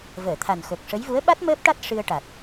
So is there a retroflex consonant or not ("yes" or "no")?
yes